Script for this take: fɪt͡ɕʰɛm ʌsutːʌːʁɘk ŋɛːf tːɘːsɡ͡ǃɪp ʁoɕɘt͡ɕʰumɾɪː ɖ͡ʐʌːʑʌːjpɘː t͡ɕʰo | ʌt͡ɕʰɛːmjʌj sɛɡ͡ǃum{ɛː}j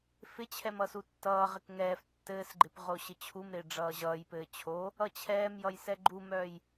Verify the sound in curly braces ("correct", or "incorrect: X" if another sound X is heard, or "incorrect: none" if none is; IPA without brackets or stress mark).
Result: incorrect: œː